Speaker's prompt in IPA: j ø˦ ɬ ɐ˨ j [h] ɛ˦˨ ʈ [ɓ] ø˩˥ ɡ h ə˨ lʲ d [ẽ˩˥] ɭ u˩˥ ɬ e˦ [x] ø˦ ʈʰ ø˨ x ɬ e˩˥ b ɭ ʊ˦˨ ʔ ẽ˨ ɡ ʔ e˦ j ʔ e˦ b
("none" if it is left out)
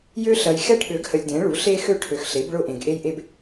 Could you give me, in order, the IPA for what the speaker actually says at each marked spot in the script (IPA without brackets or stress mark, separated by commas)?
x, ɠ, ẽ˩˥, x